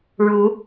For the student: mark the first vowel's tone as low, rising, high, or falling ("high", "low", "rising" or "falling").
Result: rising